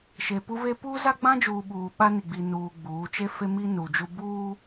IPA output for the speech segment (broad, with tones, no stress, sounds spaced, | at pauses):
ʃ e˨ p u˦ v e˦ p uː˦ z a˦ ɡ͡b ã˦ d͡ʒ uː˨ ɓ uː˨ ɓ a˦ n i˨ ɡ͡b i˨ n uː˨ ɡ͡b uː˨˦ t͡ʃ e˦ f e˦ m i˦ n u˨ d͡ʒ u˦ b uː˦